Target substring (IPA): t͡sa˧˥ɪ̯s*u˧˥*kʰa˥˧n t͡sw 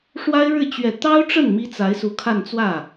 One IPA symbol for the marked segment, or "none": u˧˥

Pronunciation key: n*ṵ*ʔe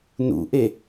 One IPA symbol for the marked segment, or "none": ṵ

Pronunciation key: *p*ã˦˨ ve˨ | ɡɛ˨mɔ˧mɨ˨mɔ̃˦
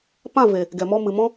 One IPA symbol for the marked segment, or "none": p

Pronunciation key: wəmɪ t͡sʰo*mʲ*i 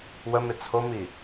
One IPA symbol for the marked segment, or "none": m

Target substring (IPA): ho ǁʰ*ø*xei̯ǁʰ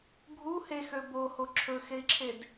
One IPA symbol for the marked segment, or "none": ɵ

